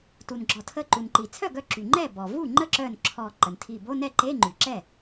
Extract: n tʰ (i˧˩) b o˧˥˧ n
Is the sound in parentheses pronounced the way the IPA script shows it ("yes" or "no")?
yes